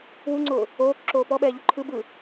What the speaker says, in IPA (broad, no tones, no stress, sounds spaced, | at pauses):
w u ŋ͡ǀ ʊː | oː k ǁ oː p ɔ ɓ ɛː ʎ u ǃʰ ɯ b ɯ